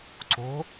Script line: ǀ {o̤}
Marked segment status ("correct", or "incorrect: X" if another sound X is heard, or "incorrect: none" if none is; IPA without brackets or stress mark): correct